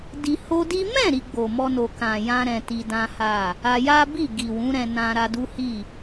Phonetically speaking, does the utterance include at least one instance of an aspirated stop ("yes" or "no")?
no